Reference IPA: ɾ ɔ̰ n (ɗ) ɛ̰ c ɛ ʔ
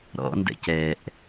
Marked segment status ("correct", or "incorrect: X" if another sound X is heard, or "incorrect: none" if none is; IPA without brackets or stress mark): incorrect: d